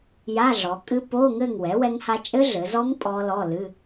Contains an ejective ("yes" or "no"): yes